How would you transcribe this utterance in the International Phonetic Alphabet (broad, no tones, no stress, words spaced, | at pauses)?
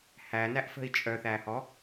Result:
hænæʔfə̤i̯ t͡ʃʼœθæhɔ